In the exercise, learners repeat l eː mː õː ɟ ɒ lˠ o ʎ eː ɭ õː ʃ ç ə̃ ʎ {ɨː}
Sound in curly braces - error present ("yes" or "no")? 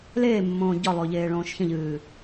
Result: no